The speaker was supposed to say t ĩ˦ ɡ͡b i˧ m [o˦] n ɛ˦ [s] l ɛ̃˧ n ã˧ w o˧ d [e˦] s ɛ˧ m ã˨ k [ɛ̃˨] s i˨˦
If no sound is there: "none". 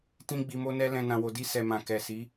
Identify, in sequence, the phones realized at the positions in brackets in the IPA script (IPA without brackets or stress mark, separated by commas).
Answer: o˦, none, i˦, ɛ˨